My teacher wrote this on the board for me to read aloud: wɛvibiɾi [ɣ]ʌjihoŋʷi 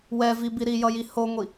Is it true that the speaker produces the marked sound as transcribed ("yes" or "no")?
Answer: no